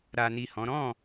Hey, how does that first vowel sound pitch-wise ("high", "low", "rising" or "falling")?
low